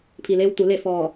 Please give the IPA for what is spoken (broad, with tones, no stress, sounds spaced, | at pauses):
pʰ i˩ l eː˧ w t̪ u˩˧ l e˥˨ f ɔː˧˩